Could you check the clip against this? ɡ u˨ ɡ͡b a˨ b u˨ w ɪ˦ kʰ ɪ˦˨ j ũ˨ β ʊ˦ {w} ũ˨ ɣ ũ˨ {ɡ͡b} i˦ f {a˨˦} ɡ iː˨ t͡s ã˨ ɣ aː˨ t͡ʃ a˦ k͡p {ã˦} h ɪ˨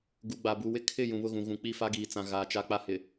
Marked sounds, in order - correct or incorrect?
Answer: incorrect, incorrect, incorrect, incorrect

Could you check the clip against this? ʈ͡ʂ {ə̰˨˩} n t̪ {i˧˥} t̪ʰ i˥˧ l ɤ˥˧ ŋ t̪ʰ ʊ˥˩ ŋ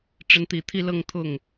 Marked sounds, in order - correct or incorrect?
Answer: incorrect, incorrect

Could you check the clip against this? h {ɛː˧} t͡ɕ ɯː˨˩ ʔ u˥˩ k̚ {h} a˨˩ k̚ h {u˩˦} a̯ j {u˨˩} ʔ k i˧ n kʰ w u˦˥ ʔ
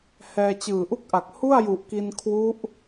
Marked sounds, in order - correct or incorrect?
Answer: correct, incorrect, incorrect, correct

